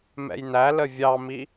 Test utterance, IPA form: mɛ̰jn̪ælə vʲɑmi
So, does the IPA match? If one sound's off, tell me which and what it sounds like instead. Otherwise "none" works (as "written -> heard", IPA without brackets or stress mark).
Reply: none